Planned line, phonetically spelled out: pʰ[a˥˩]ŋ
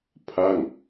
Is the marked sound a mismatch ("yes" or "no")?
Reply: no